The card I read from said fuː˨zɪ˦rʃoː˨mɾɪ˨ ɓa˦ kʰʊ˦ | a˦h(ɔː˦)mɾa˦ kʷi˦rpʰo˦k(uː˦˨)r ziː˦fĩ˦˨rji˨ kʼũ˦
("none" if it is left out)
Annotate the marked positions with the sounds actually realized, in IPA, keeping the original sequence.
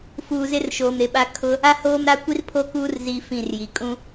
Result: oː˦, uː˦

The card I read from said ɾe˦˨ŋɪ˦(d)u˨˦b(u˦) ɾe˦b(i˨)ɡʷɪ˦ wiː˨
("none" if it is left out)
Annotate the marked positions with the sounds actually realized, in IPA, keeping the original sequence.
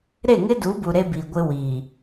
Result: d, u˨, i˨

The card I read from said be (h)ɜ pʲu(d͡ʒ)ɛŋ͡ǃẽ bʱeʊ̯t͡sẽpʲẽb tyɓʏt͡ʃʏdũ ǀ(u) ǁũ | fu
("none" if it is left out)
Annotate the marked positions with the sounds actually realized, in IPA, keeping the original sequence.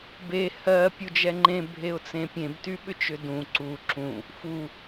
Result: h, d͡ʒ, u

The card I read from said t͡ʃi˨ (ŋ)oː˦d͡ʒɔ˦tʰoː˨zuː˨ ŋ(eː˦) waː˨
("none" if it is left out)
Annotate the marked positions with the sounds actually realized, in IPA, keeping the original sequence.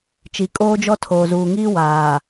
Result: kʼ, iː˦

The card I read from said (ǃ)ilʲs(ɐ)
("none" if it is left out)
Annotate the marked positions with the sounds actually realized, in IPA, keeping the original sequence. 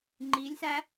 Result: ŋ͡ǃ, æ

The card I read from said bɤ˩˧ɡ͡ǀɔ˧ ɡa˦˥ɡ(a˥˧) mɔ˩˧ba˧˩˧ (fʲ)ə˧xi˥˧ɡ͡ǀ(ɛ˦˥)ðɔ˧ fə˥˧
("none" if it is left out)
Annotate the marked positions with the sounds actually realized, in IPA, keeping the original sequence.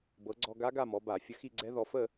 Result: a˥˧, fʲ, ɛ˦˥

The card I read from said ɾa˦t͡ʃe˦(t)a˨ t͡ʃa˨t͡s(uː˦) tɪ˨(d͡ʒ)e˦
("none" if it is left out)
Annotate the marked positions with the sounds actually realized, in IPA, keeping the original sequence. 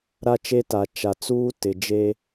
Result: t, uː˦, d͡ʒ

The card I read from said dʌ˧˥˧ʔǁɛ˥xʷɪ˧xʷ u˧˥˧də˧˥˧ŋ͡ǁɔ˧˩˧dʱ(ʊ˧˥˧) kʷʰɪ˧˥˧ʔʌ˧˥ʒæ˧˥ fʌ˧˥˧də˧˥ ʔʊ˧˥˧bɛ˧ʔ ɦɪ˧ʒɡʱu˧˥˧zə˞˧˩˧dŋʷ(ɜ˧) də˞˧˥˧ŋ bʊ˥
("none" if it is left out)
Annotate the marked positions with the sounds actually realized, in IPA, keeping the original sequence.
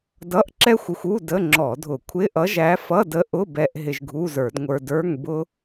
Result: ʊ˧˩˧, ə˞˧

